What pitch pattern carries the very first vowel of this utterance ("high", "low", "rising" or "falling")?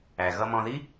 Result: low